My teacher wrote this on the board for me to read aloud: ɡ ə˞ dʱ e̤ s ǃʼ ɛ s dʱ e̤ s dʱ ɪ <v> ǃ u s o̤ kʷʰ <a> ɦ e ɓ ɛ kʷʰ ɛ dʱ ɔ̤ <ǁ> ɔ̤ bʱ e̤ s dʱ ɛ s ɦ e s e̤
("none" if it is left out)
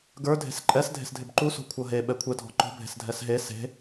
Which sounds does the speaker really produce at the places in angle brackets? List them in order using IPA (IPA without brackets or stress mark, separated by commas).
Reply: b, ʌ, ǃ